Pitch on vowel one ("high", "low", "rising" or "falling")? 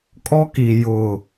high